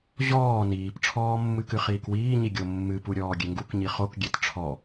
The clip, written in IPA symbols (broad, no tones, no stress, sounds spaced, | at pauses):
ʑ ɔː n iː p ʈ͡ʂʰ ɔː mː ɨ k ɨ χ iː k w iː ɲ i ɡʲ o mː ɨ p u ɾʲ ɔː ɡʲ e ŋ ɡ u k ɲ i χ o k ɡʲ e t ʈ͡ʂʰ ɔ